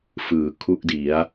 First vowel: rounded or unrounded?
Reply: unrounded